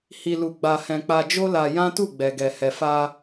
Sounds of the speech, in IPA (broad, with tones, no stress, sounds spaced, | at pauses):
h i˨ l u˨ ɡ͡b a˨ h ɛ̃˨ k͡p a˧ d͡ʒ o˦ l a˧ j ã˦ t u˦˨ ɡ͡b ɛ˨ ɡ ɛ˨ h ɛ˨ f a˧